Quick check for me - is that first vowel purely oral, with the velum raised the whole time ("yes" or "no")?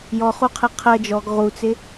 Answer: yes